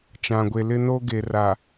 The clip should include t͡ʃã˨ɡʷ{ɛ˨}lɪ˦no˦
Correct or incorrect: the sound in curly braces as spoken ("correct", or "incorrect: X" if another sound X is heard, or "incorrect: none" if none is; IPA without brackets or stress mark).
incorrect: e˨